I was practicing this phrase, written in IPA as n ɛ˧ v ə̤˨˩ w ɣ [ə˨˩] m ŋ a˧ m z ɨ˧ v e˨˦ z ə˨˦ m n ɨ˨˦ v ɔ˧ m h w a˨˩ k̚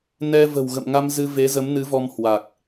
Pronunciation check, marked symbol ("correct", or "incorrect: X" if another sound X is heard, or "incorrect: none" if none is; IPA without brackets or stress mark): incorrect: ə̰˧˨